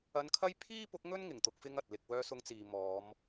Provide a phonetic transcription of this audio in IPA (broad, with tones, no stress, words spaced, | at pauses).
ɐ˧nkʰɐ˥j pʰiː˥pʊ˨˥k̚ŋɵ˥n ŋɪ˨˩ŋt̪ʊ˧k̚ fɪ˥ŋɐ˨t̚lɪ˧k̚ wœː˧sʊ˧ŋt͡siː˨ mɔː˨˧m